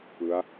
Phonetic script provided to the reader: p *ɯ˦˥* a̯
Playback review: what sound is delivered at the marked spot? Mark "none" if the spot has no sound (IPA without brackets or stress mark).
ɯ˦˥